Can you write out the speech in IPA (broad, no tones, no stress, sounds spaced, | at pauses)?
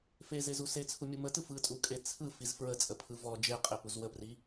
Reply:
f e z e z u s e t͡sʰ u mʲ u m ə t ɯ f ɯ tʼ u kʼ e t͡sʰ ɯ f i z f ɹ ə t͡sʼ ə pʰ ɯ v ɔ d͡ʒ e qʼ e p u z w ə p r i